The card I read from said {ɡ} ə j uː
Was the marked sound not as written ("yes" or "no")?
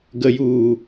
no